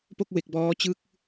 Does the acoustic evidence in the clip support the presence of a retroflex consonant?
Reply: no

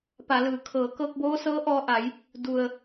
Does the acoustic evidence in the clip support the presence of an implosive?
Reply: no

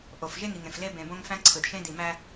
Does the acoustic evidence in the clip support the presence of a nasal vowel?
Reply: yes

